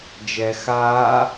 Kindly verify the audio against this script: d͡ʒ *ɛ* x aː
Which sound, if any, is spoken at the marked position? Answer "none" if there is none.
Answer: ɛ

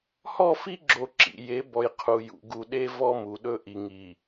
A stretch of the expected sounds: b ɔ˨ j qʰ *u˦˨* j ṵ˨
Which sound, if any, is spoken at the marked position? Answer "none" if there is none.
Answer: u˨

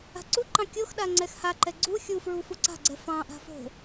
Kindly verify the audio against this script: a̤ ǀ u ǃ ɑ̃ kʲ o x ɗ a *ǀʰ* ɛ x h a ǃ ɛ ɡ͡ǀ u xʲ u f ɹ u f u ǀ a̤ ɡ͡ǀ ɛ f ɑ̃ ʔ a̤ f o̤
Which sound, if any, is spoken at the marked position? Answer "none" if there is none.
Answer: ŋ͡ǀ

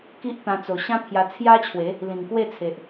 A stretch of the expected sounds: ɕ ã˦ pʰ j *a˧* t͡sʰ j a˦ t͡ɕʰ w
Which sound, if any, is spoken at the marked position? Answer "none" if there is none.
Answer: a˧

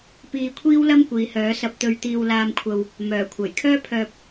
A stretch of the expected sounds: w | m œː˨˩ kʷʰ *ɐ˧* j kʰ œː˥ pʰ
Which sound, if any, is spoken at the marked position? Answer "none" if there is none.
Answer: ɐ˨˩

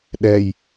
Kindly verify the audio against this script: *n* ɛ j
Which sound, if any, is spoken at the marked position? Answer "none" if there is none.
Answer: ɗ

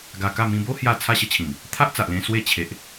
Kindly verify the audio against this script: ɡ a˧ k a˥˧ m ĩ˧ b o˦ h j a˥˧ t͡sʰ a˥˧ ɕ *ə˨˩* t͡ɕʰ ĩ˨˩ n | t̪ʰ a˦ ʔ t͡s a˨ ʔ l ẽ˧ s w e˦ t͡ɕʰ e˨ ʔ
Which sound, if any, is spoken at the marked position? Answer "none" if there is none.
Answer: ə˥˧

